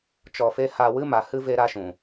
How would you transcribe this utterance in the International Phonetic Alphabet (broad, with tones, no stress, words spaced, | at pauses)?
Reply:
t͡ʃɔ˧fe˦ ha˧wɨ˦ ma˨hɨ˦ ve˦ɾa˦ʃũ˨